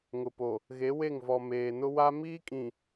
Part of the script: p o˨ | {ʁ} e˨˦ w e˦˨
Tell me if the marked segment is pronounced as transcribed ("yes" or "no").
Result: no